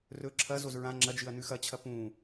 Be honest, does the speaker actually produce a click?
yes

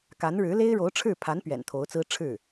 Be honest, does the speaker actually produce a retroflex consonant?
yes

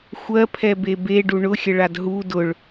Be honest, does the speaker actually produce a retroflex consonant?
yes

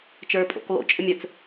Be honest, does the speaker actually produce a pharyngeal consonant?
no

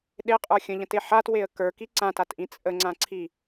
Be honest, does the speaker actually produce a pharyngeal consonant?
yes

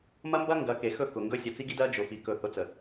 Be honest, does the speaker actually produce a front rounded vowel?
no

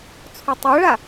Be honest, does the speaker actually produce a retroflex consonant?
yes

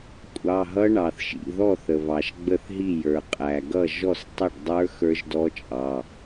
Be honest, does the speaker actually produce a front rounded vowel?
no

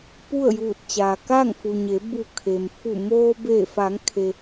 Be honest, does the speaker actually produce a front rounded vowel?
no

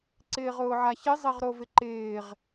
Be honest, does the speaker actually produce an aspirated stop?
no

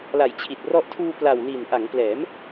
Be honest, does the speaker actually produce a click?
no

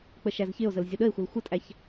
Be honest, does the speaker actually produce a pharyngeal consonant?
no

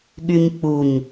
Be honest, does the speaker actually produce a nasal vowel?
no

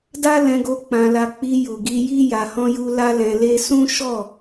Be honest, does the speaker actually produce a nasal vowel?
yes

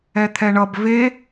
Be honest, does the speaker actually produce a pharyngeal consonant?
no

